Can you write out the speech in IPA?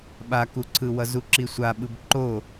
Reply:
ɓ a k u ǀʰ ɯ w ʌ z u ǁ i sʷ a ɓ ɯ b ǃ o

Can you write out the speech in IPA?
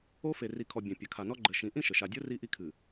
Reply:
o˦ f e˨ r i˨ kʰ ɔ˨ bʲ ɛ̃˨ pʲ ɐ˨ kʰ a˨ n ɔ˦ ɡ͡ǃ ɘ˨ ʃ ĩ˨˦ ʔ ĩ˦ ʃ ɘ˨ ʃ a˨ dʲ o˦ r i˦ ʔ i˦ kʰ ɨ˨

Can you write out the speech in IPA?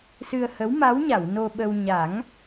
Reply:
s ɨ˧ ə̯ h ə˧˥ w m a˧˥ w ɲ a˨˩˨ w n o˧ ɓ ə˧ w ɲ a˨˩˦ ŋ

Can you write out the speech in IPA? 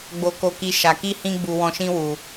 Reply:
ɡ͡b o˧ k o˧ k i˧ ʃ a˨ k i˧ h ĩ˧ ɡ͡b u˧ w ɔ̃˧ ʃ ĩ˦ w u˧

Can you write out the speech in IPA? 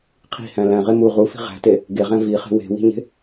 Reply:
qʰ i̤ h æ̃ l æ̃ ʁ e m u ʁ u f i̤ ʁ æ̤ t e | ɡ e ʁ æ̃ v i χ e̤ w e̤ w i̤ ɲ e̤

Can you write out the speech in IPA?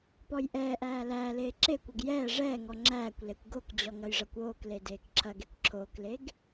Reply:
p ɔ j ʔ ɛː ʔ æː l æː l eː ǁ e kʷ ɐ ɡ j ɛː ʐ ɛː ŋ ɔ ŋ͡ǁ æː kʷ l e kʷ ɡ o k d͡ʑ ɔ ŋ ɐ j ʐ ɐ kʷ oː k l e d eː k ǁʰ ɐ ɡ e kʷ ǁʰ oː k l e ɡ

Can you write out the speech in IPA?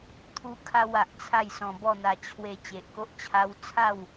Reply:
t̪ʰ u˦ kʰ a˦ w a˨ ʔ t͡sʰ a˥˧ j s ɔ̃˧ b ɔ˥˧ n̪ a˧ t͡ɕʰ w e˧ t͡ɕ e˨ ʔ k o˦ ʔ t͡ɕʰ a˧ w t͡sʰ a˥˧ w

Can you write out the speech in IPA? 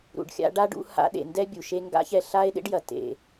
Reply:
ɾ ṵ˨ ɖ xʲ a̰˧ ɖ a˦ ɖ ṵ˧ h a̰˧ ɗ ḛ˨ n d ɛ˦ bʲ u˨ ʃ e˧ ŋ ɡ a̰˦ ç ɛ˧ ɬ a˦ e̯ ɗ ḛ˦ ɖ j ɐ˨ t ḛ˨

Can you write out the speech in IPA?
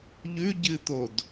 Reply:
ʎ ʉ ɟ ɨ t̪ o d

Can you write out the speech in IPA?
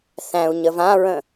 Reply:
θ æ̃ u̯ ɲ ə v ã ɹ ə̃

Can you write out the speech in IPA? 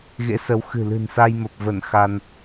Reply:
ɣ ḛ˧˥ s ə˨˦ w x ɨ̤˨˩ l ɨ̤˨˩ n s a˧ j m ə˨˩ p̚ v ə˧˩ n x a˧ n

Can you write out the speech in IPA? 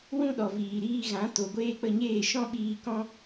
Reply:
w ũ˦ ɗ ɔ˨ v iː˨ ɾ iː˧ ɣ ã˨˦ t o˨ ɡʷ eː˧ k͡p ə˧ ɲ eː˦˨ ʃ ɔ̃˦ ɓ iː˧ k ɔ̃˦

